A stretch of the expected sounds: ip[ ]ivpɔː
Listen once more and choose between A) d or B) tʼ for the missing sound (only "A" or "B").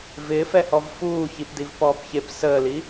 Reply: A